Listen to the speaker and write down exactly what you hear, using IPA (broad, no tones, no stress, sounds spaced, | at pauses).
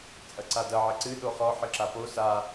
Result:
t͡sʼ ɐ ǀ a d ɐ ʕ ɘ ǀ ɨ ɗ o χ ɔ ħ ɨ ǁ a p o s a